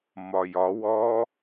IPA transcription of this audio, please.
m ɒ j ɒ w ɔ

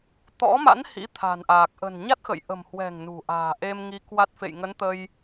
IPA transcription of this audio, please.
t̪ ɔ̰˧˥ m a̰˧˥ n h ḭ˧˥ t̪ʰ a̤˨˩ n ʔ aː˨˩ k̚ ʔ ə̤˨˩ n ɲ a˦˥ t̚ x ə̰˧˨ j ʔ ə̤˨˩ m h w ɛ̤˨˩ ŋ n ṳ˨˩ ʔ a̤ː˨˩ ʔ e˧ m ŋ i˨˦ k w a˦˥ t̚ f ḛ˧˨ j ŋ ə˨˦ n t̪ ə˧ j

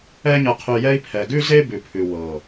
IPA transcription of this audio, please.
ɛ˧ ɲ ɤ˨ qʰ ʉ˨ j ɛ˧ i̯ pʰ ɛ˨ ɡ ʉ˦ z e˦ b ʉ˨ pʰ ʉ˨ w ɤ˨

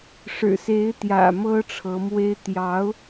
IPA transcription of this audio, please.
ʂ ɻ̩˨˩ s e˧˥ ɪ̯ t̪ j ä̰˨˩ m ɤ˥ ʈ͡ʂʰ ɤ˧˥ m w e˥ ɪ̯ t̪ j ɑ˧˥ ʊ̯

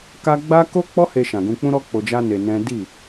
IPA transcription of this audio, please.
k a˦ ɡ͡b a˦ k o˦ k͡p ɔ˦ h e˧ ʃ ã˨ ɡ ũ˧ k͡p ũ˦ ɾ ɔ˦ k͡p o˧ d͡ʒ a˦ n e˧ n ɛ̃˦ d i˦˨

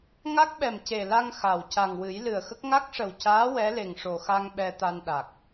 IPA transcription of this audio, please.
ŋ a˦˥ k̚ ɓ ɛ˨˩ m c e˨˩ l a˧ ŋ x a˨˩ w c a˨˩ ŋ w ɨ˨˩˦ j l ɨ˨˩ ə̯ x ə˦˥ k̚ ŋ a˦˥ k̚ ʂ ə˨˩ w c aː˧˥ w ɛ˧˥ l e˨˩ ŋ ʂ o˨˩ x a˧ ŋ ɓ ɛ˧ t̪ a˧ n ɗ a˨˩ k̚

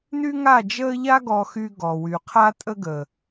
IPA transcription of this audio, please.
n y˦ ŋ a˦˨ d͡ʒ əː˦ ʎ a˦ ɡ ɔ˧ x y˧ ɡ ɔ˨ w y˨ qʰ a˧ tʼ ə˧ ɡ ə˨

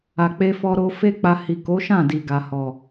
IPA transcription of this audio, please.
a˨ k͡p e˧ f ɔ˧ ɾ o˧ f e˦ k͡p a˧ h i˨ k o˨˦ ʃ ã˦˨ d i˨ ɡ a˨ h ɔ˨

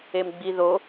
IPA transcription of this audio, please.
e m ɡ͡b i ð o

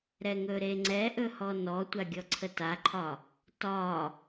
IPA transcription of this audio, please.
ɾ ɛ ŋ ɵ ɾ e ŋ͡ǀ ɛ ʔ ɵ h ɔ n ɔ tʷ a ɡʲ ɔ ǀʰ ə t a ǃʰ ɒ | t ɒ

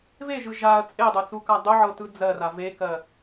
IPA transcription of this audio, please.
v e ʒ ɯ ʒ a ɐ̯ t͡sʼ e dˤ o t͡s u k a dˤ ʊ ʕ ɤ t ɯ d͡z ɜ r a v e k ɜ

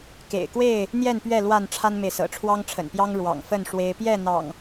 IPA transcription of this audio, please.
k ḛ˨˩ ɪ̯ k w e˥˨ ɪ̯ | n̪ j ɛ˥˨ n p ɥ ɛ˥˨ l w a˥˨ n ʈ͡ʂʰ a˦ n m e˨ ɪ̯ s ɤ̰˨˩ ʈ͡ʂʰ w ɑ˦ ŋ ʈ͡ʂʰ ə̰˨˩ n p j ɑ˦ ŋ ɻ w ɑ̰˨˩ ŋ f ə˥˨ n ʂ w e˦ ɪ̯ p j ɛ˥˨ n̪ ɑ̰˨˩ ŋ

